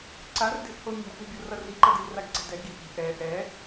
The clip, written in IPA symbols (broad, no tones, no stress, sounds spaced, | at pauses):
ǀ a r d e̤ ʔ h o mʲ a̤ ʔ ɛ̤ bʲ o r ʌ r i ǃ ʌ d i l r a ɡ ǀ ɛ̤ d ɛ ɡ i ʔ i̤ ʔ ɛ ʔ ɛ